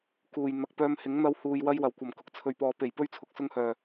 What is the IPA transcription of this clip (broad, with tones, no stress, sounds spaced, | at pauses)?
k uː˨ j n̪ ɐ˨ k̚ p œː˧ m h ɪ˨˥ ŋ n̪ ɐ˧ w h uː˧ j w ɐ˥ j w ɐ˨ w kʷ ɐ˨˩ m k ʊ˨ k̚ t͡sʰ ɵ˨ ɥ p ɔː˨ p e˨˩ j p ɵ˥ ɥ t͡sʰ ʊ˨˥ k̚ s ʊ˧ ŋ h œː˨˩